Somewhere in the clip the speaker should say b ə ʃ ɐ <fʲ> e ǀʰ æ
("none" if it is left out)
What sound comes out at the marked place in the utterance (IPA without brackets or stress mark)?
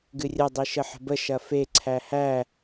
f